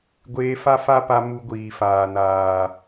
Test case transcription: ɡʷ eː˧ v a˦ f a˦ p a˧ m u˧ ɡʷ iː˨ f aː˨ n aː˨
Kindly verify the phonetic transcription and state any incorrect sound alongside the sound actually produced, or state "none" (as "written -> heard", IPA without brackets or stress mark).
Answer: v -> f